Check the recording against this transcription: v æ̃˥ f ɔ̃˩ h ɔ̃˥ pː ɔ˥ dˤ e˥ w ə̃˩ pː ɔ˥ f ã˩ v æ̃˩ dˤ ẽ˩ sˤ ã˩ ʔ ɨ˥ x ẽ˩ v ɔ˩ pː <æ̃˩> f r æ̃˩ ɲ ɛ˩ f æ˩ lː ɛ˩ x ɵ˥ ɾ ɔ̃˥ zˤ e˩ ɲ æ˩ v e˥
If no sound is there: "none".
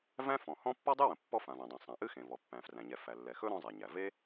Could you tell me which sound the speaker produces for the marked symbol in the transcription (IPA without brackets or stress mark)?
æ̃˩